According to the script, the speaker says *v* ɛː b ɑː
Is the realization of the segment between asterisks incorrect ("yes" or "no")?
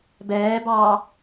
yes